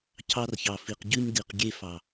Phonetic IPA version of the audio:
cʰ ɑ˧ r ç ɑ˨ f i˨ q ɟ ʉ˧ ɲ d i˨ q ɡʲ e˧ f ɑ˨

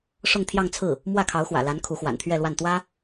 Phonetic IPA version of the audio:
ʂ ʊ˥˧ ŋ t̪ʰ j ɑ˥˧ ŋ t͡sʰ ɹ̩˥˩ | m w ä˥˩ kʰ ɑ˧˥ ʊ̯ x w ä̰˨˩ l a˧˥ n kʰ u˧˥ x w a̰˨˩ n t̪ʰ ɥ ɛ˥˧ l w a˥˩ n t̪ w ä˥

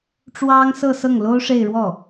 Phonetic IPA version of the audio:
ʈ͡ʂ w ɑ˥ ŋ s ɤ˥˧ s ɤ˥˩ ŋ l o˥ ʊ̯ ʂ e˥˧ ɪ̯ ɻ w ɔ˥˩

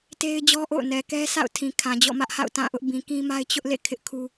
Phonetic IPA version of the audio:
t e˦ ɪ̯ d͡ʑ ɔ˦ ʔ o̰˦˨ ʊ̯ n ɛ˨ k ɛ˦ sʰ a̰˦˨ ʊ̯ tʰ ĩ˨ kʰ ã˨ d͡ʑ ɔ̰˦˨ m ä˦ ʔ h a̰˦˨ ʊ̯ t ã˦˨ ʔ ʊ˦ ʔ b ĩ˨ k ĩ˦ m a˦ ɪ̯ t͡ɕ ʊ˦ ʔ l ḛ˦˨ kʰ ɪ˦ ʔ kʰ u˦

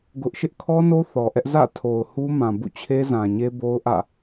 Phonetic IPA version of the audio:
ɡ ʊ˦ ʔ ʃ ɪ˦ ʔ kʰ ɔ˦ n o˦ θ ɔ˨ ʔ ɛ˦ ʔ z ä̰˦˨ tʰ o˨ ʊ̯ h u˦ m ã˨ b ṵ˦˨ t͡ɕʰ e˦ z ã˨ ɲ e˦ b o˦ ʊ̯ ʔ ä̰˦˨

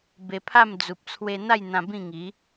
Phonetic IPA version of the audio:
b e˧ pʰ a˥˧ m d͡z u˨ p̚ t͡sʰ w e˧ n̪ a˥˧ j n̪ ã˧ b ĩ˥˧ ŋ i˨˦

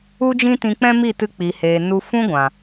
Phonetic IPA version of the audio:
u˦ d͡ʒ ĩ˦ t ĩ˧ k͡p ɛ̃˦ m i˦˨ t ɨ˧ k͡p i˨ h eː˨ n u˧ f ũ˦ ɡʷ ã˨

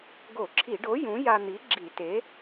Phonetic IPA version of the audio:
ɡ o˧˩˧ ǁʰ i˧˩˧ ɖ o˨˥ j ũ˨˥ j a˧ n̪ i˨˥ ɡ͡ǁ i˧˩˧ t e˨˥

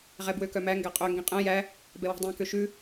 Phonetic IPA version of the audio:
ʁ ɛ b w ø k œ m æ ŋ ɡ æ qʼ ø ŋ ɡ ĩ qʼ ɛ̃ j æ | b ɛ w i̤ dˤ ĩ k ø ʃ ʉ

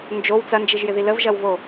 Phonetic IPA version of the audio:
n d͡ʒ o w t͡s ɐ n d͡ʒ i ʒ j ɪ ð i l ə v ʒ ɐ w v o

